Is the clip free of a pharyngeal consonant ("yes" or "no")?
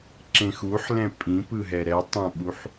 no